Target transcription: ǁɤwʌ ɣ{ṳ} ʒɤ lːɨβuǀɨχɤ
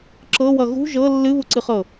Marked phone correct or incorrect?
correct